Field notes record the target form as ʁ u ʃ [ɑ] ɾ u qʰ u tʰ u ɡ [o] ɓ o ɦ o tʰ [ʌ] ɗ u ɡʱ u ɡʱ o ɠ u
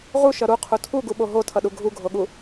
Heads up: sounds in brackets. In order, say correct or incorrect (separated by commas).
incorrect, incorrect, correct